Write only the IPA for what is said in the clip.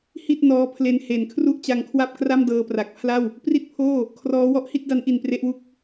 h i˥˩ t̚ n ɔː˦˥ pʰ l e˦˥ n h e˨˩ n kʰ r u˥˩ ʔ t͡ɕ a˧ ŋ kʰ w a˥˩ p̚ k r a˥˩ m d ɤː˧ p r a˨˩ k̚ pʰ l a˥˩ w | p r i˥˩ t̚ pʰ oː˥˩ | kʰ r ɔː˦˥ w ɔ˦˥ ʔ h i˥˩ t̚ d a˦˥ n ʔ i˨˩ n p r e˦˥ ʔ w u˥˩ k̚

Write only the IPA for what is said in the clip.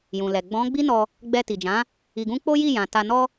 j ũ˨ l ɛ˨ ɡ͡b ɔ̃˨˦ ɡ͡b i˦ n ɔ˧ | ɡ͡b ɛ˧ t i˨ d͡ʒ ã˨˦ | i˧ ɡ ũ˦ k͡p o˦ j i˦˨ j ã˨ t a˧ n ɔ˦

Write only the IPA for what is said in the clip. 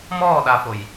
m ɔː ɗ a f o j

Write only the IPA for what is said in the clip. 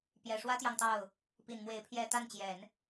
p j ɛ˨˩ ʂ w ä˥ t̪ j ɑ˨ ŋ t̪ ɑ˥˩ ʊ̯ | p i˨˩ n m w e˧˥ ɪ̯ pʰ j ɛ˥˧ t̪ a˥˩ n t͡ɕ j ɛ˨˩˦ n

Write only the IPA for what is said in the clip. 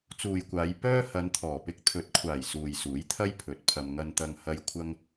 t͡s uː˨ j kʷ aː˨˧ j p œː˥ h ɐ˨˧ n t̪ʰ ɔː˨˩ p ɪ˧ k̚ t̪ʰ ɵ˨˥ t̚ kʷʰ aː˨˩ j s uː˨ j s uː˨˥ j t̪ʰ ɐ˥ j pʰ ɵ˨˥ t̚ pʰ ɐ˧ m ŋ ɐ˧ n t̪ ɐ˧ ŋ h ɐ˧ j kʷʰ ɐ˥ ŋ

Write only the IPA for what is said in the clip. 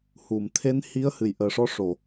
h u˨˩˨ m t̪ʰ e˧˥ n h i˧˥ ə̯ h ɨ˨˩ j ʔ əː˨˩ ʂ ɔ˧˥ ʂ o˨˩˨

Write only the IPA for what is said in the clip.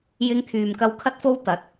j ɪ˧ ŋ t̪ʰ yː˨ m k ɐ˧ w kʰ ɐ˥ t̚ f o˥ w t̪ ɐ˨˥ t̚

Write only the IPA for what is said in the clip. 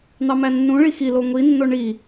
n̪ ɑ m æ nː ũ ɭ i x i l o ŋʷ i nː o ɳ i

